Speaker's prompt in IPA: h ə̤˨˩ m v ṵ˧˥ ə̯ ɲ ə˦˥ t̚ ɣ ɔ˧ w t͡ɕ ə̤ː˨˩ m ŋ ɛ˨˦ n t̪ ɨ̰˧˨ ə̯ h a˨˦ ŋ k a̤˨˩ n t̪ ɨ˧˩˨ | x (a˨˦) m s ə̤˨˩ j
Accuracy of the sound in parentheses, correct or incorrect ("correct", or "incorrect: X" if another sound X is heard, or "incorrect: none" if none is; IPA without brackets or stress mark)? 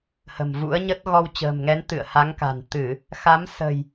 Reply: correct